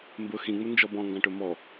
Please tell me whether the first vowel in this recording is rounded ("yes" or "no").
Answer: yes